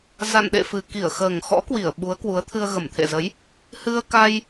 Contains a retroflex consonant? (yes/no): no